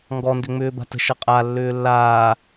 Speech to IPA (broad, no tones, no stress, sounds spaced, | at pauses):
ŋ ɡ ɔ n d ʏ ŋ͡m ʏː b a̤ t ə̤ ʃ ʌ qʼ a lː ʏː lː aː